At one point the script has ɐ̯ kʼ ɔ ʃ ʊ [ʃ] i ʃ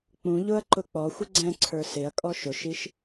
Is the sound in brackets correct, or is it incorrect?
correct